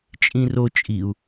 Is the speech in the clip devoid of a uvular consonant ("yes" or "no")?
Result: yes